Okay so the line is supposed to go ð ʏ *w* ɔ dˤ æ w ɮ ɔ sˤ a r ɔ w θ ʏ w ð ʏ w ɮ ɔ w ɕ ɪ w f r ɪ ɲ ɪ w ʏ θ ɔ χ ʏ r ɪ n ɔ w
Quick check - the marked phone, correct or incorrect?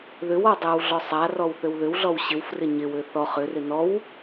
correct